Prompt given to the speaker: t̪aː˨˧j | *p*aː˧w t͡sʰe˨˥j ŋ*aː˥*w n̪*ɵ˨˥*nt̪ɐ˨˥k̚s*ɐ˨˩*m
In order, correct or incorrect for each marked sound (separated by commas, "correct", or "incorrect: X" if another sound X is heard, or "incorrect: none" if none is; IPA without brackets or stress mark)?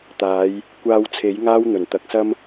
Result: incorrect: kʷ, correct, incorrect: ɵ˨˩, incorrect: ɐ˥